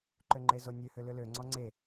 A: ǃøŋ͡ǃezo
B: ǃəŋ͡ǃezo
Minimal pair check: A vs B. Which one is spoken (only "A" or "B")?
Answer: A